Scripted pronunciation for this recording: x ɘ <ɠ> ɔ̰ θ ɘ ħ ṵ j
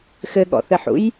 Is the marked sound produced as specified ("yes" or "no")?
yes